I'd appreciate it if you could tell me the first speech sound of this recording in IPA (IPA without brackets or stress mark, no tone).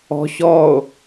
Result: ɔ̤